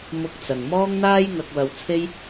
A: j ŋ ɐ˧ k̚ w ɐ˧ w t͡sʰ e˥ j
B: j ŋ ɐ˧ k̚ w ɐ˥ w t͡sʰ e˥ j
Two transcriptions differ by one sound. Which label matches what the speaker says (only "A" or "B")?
A